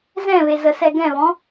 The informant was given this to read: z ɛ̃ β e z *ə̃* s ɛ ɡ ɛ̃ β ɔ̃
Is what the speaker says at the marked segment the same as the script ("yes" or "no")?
no